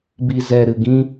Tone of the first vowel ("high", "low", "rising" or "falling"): low